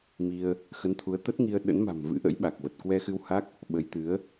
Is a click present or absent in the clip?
absent